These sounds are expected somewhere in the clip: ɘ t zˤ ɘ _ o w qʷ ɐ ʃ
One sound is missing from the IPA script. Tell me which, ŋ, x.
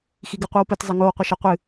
ŋ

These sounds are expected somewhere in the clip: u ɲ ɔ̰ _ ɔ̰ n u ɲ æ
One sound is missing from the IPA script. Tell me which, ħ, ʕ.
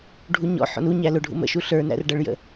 ħ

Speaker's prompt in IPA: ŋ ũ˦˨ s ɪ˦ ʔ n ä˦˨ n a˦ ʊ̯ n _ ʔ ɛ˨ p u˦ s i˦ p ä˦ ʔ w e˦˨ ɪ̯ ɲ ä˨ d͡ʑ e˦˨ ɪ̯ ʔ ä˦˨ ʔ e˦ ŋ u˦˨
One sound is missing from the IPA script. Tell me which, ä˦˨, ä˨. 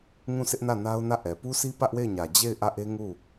ä˦˨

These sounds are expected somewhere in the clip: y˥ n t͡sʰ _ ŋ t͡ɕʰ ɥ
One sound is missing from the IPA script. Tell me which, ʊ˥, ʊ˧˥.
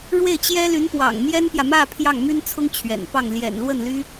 ʊ˥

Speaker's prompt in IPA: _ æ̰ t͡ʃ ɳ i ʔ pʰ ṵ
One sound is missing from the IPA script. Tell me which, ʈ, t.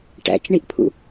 ʈ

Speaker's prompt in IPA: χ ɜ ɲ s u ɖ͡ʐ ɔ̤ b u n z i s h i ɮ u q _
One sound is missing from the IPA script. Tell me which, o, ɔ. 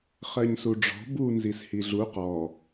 ɔ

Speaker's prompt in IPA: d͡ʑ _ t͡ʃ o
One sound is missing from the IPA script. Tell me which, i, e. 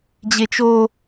e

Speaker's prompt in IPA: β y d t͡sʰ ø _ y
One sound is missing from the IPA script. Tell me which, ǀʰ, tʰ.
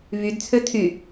tʰ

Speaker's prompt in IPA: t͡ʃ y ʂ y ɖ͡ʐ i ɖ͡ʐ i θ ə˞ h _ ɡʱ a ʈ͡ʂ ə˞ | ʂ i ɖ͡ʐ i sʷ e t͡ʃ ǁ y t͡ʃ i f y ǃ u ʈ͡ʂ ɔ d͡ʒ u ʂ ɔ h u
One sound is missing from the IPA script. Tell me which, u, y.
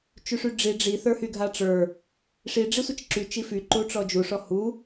y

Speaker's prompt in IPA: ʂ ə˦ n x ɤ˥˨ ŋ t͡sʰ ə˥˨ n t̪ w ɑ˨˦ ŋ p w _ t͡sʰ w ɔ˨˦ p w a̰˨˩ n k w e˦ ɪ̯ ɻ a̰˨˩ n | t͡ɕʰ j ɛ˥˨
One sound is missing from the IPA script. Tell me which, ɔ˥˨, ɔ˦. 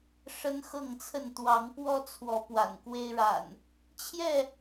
ɔ˦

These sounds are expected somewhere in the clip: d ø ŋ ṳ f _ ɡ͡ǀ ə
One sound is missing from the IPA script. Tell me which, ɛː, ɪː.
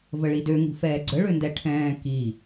ɛː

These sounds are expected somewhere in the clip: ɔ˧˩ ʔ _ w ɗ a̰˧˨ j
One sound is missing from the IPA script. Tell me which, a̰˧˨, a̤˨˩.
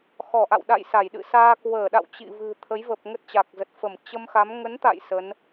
a̰˧˨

